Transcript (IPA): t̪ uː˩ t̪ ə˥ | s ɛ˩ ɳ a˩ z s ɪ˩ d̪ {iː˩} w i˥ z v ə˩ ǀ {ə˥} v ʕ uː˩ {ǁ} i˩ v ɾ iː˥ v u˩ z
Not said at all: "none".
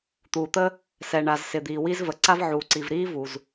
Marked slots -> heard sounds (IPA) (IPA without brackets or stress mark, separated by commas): iː˩, a˥, ǀ